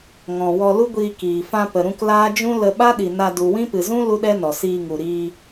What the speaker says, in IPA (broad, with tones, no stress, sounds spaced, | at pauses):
ŋ ɔ̃˨ w ɔ˧ l u˦ ɡʷ iː˧ k iː˨ f ã˧ p ə˨ ɾ ũ˧ k l aː˦ d͡ʒ ũ˦ l ə˧ ɓ a˦ ɗ i˨ n a˧ d u˨ w ĩ˦ p ɨ˨ z ũ˦ l u˦ ɗ ɛ˦ n ɔ˨ s iː˧ ŋ u˨ ɾ iː˧